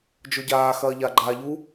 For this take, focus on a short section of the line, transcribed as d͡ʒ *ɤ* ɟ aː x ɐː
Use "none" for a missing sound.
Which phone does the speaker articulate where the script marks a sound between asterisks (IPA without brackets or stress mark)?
o